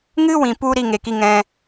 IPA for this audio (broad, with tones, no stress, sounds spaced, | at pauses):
ŋ ɨ˦ w ĩ˨ p u˧ ɾ i˦ ŋ e˨ k i˦ ŋ ɛ̃˦